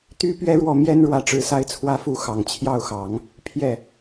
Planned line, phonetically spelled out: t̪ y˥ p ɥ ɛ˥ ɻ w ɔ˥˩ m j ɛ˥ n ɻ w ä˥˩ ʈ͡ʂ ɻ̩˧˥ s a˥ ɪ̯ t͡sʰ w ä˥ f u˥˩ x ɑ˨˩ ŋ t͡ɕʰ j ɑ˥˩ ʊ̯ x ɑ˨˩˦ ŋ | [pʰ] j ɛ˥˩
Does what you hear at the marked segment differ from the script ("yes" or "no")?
no